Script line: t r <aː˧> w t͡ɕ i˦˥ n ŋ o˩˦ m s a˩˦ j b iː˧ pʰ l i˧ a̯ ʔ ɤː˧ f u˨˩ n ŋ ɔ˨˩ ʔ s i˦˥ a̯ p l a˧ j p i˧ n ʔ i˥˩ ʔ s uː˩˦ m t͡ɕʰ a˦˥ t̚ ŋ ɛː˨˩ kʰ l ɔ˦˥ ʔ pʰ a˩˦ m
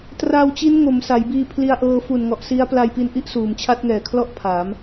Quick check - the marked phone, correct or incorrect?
correct